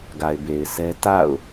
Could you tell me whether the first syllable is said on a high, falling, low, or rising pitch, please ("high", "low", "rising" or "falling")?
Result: low